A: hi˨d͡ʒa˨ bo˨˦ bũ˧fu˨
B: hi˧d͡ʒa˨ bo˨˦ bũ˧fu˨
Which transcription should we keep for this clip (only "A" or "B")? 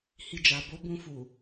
B